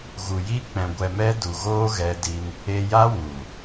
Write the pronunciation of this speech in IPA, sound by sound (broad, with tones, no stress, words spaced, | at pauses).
ɣu˨ji˦ k͡pɛ̃˧ɡʷɛ˧mɛ˦ du˨ɣoː˦ ɣɛ˦di˦n | e˧ja˦ wu˨